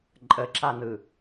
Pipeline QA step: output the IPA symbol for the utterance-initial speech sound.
ǃʼ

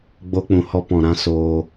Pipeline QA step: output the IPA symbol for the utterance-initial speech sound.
ɡ͡b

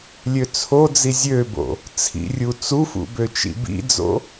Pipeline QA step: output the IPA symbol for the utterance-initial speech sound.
lʲ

